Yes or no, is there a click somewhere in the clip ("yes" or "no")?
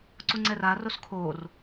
yes